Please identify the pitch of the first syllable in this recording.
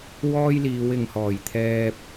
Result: high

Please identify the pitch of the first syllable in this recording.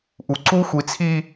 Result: low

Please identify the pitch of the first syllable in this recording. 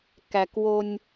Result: low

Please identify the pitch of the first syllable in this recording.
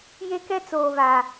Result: high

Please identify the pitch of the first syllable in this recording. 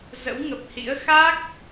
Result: rising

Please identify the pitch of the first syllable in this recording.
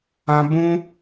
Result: high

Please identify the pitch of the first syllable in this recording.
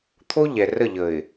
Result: high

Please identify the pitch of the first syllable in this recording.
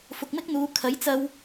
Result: low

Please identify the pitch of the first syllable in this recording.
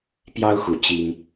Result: high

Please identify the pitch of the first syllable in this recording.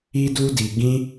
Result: high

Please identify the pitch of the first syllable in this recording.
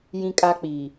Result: high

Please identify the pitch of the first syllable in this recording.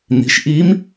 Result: rising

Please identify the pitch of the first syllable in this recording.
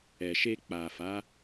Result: low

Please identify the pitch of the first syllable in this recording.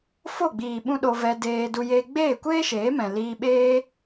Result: falling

